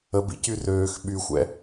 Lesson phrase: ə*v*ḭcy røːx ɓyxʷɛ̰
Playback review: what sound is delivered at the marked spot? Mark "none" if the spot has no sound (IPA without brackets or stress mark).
b